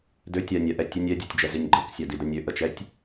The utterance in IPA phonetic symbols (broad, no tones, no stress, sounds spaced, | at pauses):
d ø tʲ a nʲ a ʔ ɛ tʲ ə nʲ ɛ dʲ ɔ tʲ d͡ʒ ɛ z i nʲ ɡ͡ǃ ɤ k sʲ a d i d ə nʲ ø ʔ ə t͡ʃ ɛ tʲ